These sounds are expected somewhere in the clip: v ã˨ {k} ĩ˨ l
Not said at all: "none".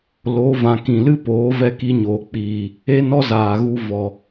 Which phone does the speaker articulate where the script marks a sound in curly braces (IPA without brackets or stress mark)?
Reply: k